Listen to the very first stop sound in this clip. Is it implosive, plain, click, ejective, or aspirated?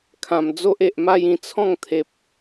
aspirated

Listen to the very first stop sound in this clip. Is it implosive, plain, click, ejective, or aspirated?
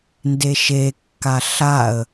plain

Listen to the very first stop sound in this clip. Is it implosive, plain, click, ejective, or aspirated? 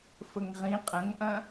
ejective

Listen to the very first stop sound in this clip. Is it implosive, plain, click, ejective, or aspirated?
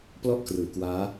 plain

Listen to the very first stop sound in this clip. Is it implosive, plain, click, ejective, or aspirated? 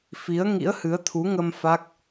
aspirated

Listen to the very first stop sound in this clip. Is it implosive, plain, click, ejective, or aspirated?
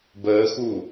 plain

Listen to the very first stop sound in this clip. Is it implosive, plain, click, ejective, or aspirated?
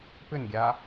plain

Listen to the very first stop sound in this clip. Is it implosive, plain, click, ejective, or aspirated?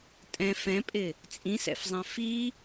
ejective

